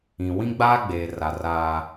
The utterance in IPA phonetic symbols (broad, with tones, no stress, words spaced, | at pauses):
ĩ˨ wĩ˦ɡ͡baː˦ɡ͡beː˨ra˨ raː˦